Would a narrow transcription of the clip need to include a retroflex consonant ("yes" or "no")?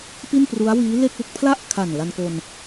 no